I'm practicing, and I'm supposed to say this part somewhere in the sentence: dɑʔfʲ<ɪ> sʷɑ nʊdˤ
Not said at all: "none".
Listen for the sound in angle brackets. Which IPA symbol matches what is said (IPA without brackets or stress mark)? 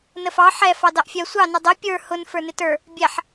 ɛ